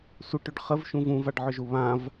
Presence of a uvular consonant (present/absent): present